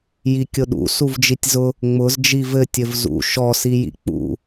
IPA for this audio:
j i kʲ ʊ ɗ ṵ s u v d͡ʒ i tʲ z ʊ | ŋ͡m ʊ z d͡ʒ i v ɘ tʲ ɘ v z ṵ ʃ ɔ s i j ḭ k͡p ṵ

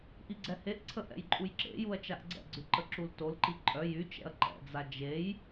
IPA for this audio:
ʔ i ɡ͡ǀ ɛ h e ʔ ǀʰ ə ʔ ɛ̰ j ǃʼ u j ǁ ḛ j u ɐ̯ t͡ʃ a ʔ ɡ͡ǀ ɛ̰ ɡ͡ǀ y ǃ ə ǁ u l t o l ǃ i ǃʼ œ j y t͡ʃ ɛ̰ ɐ̯ ǃ ɛ̰ d͡z a d͡ʒ e j

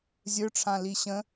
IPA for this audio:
zʲ ə˞ ʈ͡ʂʰ ã l i ɕ ə̃

